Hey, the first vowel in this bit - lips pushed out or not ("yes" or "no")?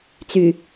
yes